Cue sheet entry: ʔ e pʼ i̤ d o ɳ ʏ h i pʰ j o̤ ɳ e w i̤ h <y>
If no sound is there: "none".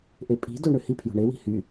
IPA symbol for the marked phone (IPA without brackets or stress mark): y